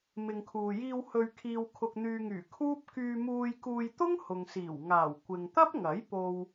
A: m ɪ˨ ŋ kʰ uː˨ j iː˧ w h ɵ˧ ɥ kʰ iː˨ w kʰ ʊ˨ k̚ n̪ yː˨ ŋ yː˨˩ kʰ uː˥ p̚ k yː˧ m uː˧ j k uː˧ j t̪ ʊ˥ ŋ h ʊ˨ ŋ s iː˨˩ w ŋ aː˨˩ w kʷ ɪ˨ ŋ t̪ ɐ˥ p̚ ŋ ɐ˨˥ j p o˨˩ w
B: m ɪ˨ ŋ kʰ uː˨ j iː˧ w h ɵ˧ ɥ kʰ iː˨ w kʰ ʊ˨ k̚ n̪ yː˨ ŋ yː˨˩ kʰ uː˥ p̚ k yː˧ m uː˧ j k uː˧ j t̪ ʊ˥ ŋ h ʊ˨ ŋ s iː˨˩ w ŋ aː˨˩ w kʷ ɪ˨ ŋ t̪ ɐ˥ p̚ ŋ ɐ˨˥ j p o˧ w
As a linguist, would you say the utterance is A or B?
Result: B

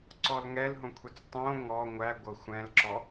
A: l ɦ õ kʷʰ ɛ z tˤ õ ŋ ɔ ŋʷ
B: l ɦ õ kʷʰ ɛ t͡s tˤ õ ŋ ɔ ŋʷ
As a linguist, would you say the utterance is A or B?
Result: B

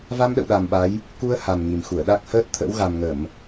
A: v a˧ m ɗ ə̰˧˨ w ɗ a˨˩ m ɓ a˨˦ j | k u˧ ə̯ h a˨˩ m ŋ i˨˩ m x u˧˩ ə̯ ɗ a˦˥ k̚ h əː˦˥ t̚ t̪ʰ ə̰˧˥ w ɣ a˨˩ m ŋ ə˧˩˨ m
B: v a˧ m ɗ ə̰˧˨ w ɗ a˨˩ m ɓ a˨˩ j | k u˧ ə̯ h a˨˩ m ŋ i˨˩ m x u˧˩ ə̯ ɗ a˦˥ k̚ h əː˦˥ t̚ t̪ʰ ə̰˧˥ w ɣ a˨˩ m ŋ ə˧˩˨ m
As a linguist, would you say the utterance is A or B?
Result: A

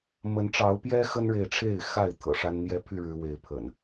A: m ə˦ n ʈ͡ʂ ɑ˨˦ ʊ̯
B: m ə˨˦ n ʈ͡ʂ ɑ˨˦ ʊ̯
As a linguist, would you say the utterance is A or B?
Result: B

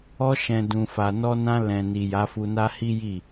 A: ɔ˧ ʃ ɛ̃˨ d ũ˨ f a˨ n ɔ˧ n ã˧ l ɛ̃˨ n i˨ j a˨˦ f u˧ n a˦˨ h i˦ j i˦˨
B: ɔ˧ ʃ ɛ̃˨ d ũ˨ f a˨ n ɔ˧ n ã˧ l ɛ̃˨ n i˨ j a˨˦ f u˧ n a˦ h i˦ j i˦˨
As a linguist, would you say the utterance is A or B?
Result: B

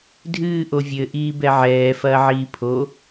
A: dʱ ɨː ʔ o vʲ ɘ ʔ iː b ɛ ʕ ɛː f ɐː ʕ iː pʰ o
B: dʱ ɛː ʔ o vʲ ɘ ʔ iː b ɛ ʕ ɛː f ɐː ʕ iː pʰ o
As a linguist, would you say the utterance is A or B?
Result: A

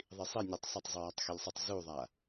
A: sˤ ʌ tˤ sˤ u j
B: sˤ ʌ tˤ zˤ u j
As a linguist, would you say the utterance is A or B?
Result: B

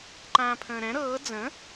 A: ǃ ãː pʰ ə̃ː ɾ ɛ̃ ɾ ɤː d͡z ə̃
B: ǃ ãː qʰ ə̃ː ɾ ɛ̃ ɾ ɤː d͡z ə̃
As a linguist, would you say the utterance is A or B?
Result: A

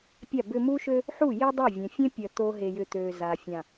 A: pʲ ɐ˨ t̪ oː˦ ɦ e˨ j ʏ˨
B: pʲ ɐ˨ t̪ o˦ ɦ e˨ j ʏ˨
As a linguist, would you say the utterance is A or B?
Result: B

